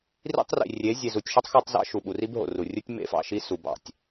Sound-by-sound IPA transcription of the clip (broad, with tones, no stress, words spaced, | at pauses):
rḭ˦tˤrḭ˨rʲe˨˦ zʲe˨zu˨tʲʃu˦tˤ xo˦tˤzɑ̰˦ʃu˨ ɓu˨ri˦b ɦo̰˨ru˨ rʲu˦tʲ mḛ˦fɑ̰˨ʃi˦ su˨bɑ̰˦˨tʲ